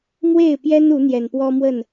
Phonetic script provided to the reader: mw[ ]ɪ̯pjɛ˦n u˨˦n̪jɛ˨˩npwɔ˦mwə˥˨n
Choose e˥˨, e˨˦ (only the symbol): e˥˨